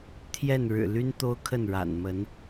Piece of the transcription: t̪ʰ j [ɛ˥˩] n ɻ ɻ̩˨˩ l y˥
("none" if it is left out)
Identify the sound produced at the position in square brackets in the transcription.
ɛ˥˩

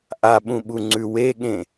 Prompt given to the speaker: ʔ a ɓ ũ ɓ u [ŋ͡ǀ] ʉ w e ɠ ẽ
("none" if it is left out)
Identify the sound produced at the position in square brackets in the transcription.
ŋ͡ǀ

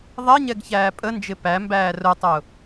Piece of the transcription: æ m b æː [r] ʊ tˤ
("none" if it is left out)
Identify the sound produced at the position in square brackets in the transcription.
r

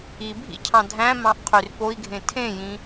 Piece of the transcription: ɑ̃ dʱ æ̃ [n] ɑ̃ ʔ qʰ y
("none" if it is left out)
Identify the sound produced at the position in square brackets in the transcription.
m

